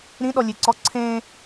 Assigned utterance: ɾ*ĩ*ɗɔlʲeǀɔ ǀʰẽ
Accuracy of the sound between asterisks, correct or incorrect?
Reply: correct